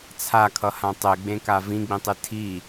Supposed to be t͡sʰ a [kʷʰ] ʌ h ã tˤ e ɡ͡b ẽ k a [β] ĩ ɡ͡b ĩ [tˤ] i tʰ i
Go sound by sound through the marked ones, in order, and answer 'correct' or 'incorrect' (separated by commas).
incorrect, incorrect, correct